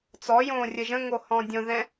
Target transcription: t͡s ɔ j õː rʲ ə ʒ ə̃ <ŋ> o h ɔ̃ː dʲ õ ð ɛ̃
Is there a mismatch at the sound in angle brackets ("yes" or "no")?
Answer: no